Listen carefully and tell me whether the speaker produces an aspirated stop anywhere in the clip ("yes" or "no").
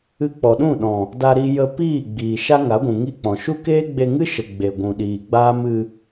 no